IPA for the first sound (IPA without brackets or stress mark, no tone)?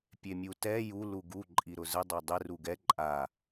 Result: pʲ